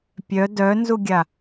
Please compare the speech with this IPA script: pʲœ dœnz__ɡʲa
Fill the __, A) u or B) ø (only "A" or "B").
A